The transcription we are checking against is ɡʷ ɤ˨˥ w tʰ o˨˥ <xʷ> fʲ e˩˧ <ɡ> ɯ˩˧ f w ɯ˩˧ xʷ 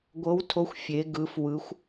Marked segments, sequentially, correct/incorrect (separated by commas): correct, correct